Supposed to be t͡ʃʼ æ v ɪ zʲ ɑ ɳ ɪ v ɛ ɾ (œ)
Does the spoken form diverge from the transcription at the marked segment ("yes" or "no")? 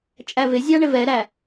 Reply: yes